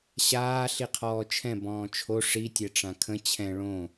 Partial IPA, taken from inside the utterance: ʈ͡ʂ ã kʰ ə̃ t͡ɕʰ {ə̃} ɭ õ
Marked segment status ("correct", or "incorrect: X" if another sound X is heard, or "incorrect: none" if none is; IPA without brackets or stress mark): incorrect: ɛ̃